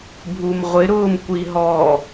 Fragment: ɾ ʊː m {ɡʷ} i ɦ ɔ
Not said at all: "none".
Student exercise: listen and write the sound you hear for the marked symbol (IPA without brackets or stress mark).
kʷ